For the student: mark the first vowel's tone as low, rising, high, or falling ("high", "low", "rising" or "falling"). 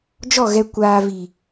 falling